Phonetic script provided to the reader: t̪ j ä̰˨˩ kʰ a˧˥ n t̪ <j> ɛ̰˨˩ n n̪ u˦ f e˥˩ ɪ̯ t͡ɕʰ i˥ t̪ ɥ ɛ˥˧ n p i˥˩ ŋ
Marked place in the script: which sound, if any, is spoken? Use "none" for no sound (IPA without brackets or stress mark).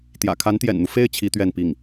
j